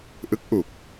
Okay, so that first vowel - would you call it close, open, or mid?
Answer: close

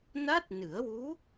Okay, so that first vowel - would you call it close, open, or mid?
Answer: open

